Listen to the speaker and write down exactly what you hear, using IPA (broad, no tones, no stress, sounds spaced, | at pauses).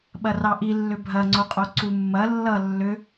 ɓ ɐ r ɑ ʔ i lː ʏ bʱ ɐ ŋ͡ǀ o qʼ o ǀ u mː ɐ lː ʌ lː ʏ